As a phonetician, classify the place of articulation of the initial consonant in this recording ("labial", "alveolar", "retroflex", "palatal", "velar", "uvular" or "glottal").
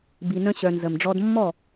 labial